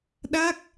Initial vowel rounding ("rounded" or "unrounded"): unrounded